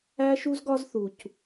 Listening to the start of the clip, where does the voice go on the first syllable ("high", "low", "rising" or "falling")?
high